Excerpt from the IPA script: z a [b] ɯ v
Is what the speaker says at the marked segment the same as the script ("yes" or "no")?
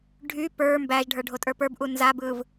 yes